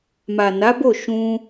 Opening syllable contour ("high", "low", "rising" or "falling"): low